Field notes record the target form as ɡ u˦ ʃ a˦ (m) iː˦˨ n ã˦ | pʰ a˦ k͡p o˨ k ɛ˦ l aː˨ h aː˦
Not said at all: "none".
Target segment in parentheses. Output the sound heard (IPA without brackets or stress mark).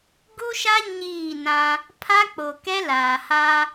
ɲ